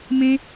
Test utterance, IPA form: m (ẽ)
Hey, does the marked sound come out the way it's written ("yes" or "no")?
yes